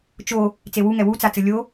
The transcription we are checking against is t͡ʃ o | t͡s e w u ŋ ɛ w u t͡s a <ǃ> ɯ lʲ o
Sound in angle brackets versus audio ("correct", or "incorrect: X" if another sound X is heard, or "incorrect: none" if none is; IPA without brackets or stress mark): incorrect: t͡s